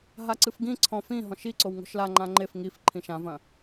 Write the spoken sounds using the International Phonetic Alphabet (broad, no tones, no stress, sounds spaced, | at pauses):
ɦ a ǀ ɨ f ɡ ĩ ǀʰ ɔ̃ f ĩ ɦ ɔ̃ ʃ i ǀ o w ŋ o̤ ʃ l a ŋ͡ǃ ã ŋ͡ǃ e f ŋ i f ǃʰ ĩ ʃ ã v ɐ̃